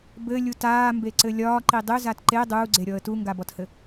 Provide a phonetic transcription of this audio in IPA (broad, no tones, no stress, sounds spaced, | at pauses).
b ɘ lʲ u t aː m b e ǀ ɘ lʲ ɒː ǃ i dˤ ø z a t ǃ e dˤ uː ɡ͡ǀ e ɾʲ ɔ ə̯ t u ŋ ɡ a b ɔ t h ɘ